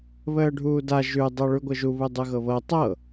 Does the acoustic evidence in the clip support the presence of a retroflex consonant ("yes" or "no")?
yes